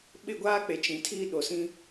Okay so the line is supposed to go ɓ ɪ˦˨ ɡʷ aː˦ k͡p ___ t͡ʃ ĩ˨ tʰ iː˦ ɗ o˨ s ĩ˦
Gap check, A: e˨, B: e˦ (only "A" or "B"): A